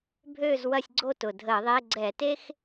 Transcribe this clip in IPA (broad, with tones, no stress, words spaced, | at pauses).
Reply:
bʱøː˦˨zwɐ˦˨sʲɡ͡ǀo˦˨ tʊ˨˩ dʱəː˧˩˧ðˤe˧˥˧ ɡ͡ǀɛ˧˩˧te˥x